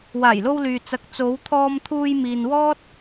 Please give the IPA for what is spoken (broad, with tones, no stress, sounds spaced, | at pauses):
w aː˨˩ j l o˧ w l yː˨ t͡s ɐ˧ k̚ t͡s o˨˧ w t̪ʰ ɔː˧ m t̪ʰ uː˧ j m iː˧ n w ɔː˥ t̚